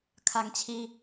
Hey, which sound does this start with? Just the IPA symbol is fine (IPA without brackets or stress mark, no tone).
kʰ